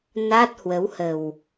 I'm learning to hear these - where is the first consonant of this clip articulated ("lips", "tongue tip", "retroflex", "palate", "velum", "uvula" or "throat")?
tongue tip